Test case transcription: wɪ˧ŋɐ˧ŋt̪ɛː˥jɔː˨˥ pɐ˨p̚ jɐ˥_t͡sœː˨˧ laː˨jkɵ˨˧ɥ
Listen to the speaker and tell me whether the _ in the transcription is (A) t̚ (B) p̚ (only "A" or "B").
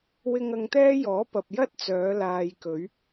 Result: A